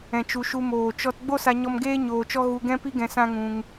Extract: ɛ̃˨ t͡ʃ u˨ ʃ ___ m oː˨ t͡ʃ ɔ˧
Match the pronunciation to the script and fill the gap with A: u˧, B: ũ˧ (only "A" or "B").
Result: A